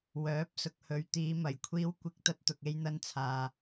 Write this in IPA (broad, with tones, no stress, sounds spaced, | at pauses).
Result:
w œː˨˥ p̚ s ʊ˨ k̚ h ɵ˨˧ ɥ t̪ iː˨˧ m ɐ˨˩ j kʷʰ iː˨˧ w kʷ ɪ˨ k̚ t̪ ɐ˧ t̚ t̪ ʊ˨ k̚ e˧ j n̪ ɐ˧ n t͡sʰ aː˨